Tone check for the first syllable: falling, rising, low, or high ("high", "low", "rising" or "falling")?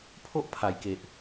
high